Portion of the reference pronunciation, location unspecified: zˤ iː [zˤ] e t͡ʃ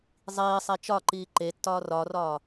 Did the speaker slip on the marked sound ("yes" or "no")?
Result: yes